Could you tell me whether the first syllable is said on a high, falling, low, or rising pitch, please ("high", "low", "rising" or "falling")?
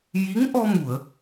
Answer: rising